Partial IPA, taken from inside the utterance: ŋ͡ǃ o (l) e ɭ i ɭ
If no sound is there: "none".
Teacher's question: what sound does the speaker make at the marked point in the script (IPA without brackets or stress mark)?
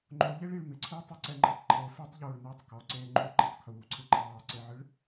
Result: ʎ